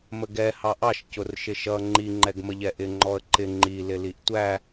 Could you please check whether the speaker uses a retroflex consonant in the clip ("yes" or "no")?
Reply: no